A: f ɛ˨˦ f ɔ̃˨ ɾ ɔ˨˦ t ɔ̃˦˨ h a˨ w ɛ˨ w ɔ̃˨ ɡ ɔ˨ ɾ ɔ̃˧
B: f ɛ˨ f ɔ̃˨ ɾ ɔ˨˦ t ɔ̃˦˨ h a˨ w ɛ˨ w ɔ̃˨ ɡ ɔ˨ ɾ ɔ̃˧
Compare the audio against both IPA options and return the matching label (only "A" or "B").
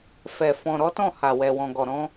B